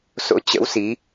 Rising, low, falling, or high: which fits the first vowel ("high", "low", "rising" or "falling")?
rising